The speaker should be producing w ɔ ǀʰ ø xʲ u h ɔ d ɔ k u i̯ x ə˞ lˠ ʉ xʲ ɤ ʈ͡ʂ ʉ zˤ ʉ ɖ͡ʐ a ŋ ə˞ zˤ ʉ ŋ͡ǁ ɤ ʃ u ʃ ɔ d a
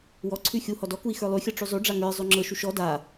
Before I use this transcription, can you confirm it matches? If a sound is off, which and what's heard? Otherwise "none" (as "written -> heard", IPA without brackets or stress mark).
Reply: ø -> ʉ